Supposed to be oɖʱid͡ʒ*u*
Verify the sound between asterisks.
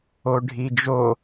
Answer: incorrect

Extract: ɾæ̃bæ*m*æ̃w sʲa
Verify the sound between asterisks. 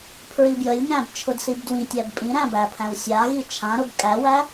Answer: incorrect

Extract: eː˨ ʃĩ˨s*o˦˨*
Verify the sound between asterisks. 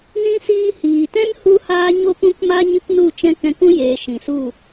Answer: incorrect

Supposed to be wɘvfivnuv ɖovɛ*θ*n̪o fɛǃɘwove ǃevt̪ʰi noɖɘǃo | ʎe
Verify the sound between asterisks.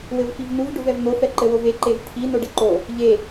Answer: incorrect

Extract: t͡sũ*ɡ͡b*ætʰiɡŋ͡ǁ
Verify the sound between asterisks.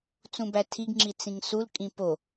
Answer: incorrect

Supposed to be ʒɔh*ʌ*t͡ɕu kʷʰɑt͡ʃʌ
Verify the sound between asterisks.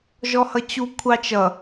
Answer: correct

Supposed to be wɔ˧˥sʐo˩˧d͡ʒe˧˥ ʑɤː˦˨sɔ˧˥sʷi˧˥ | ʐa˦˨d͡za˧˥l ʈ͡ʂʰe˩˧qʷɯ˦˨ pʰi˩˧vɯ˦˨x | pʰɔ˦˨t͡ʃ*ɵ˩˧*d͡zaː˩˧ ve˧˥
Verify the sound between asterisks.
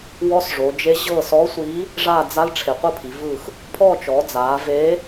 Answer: incorrect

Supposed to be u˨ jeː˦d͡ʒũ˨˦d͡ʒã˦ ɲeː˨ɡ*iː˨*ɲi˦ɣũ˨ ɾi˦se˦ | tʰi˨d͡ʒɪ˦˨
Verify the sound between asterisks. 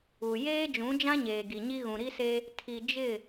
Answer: incorrect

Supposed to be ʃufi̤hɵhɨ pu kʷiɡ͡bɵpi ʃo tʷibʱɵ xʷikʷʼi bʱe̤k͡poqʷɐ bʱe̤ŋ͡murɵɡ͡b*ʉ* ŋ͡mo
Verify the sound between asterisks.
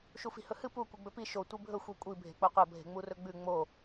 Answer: correct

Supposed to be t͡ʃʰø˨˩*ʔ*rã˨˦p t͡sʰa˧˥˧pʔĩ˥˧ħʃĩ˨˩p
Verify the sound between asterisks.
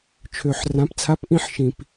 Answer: incorrect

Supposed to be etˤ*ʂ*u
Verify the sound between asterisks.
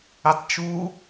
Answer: incorrect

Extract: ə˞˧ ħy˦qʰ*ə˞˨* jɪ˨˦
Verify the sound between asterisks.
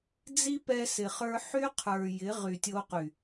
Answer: correct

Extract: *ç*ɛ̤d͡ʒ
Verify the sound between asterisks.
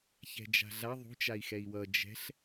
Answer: correct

